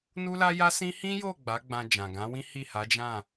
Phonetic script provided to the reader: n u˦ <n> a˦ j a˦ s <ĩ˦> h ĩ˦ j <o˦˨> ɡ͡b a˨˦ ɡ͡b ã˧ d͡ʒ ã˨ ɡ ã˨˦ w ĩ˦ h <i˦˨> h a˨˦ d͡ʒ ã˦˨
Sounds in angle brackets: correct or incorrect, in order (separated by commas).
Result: incorrect, correct, correct, correct